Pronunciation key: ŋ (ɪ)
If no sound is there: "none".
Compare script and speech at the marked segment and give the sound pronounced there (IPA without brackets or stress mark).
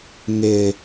ɪ